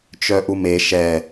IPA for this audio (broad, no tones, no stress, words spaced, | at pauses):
t͡ʃœʔume ʃɛ